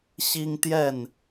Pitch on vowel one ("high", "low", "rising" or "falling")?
high